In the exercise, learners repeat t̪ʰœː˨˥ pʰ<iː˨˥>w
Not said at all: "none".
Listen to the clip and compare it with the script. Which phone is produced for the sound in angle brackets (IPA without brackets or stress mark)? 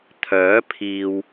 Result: iː˨